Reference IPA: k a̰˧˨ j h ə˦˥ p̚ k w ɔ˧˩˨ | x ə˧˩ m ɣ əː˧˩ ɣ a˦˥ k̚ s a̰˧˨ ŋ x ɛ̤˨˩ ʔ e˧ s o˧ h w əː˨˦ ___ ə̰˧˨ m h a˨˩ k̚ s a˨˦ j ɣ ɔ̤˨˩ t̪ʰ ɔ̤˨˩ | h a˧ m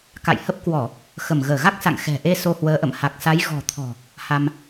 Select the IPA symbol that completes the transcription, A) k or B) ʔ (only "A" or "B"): B